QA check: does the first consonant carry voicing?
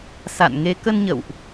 no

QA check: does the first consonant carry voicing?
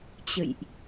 no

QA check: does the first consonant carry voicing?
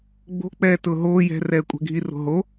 yes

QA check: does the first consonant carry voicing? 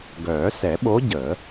yes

